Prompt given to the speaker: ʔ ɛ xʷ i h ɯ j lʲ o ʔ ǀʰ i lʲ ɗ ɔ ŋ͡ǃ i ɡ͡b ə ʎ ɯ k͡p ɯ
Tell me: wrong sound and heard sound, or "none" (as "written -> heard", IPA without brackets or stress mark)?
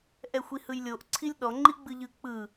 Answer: ə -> ɯ